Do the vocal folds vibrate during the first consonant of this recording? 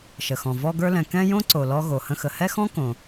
no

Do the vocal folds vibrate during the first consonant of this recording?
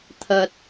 no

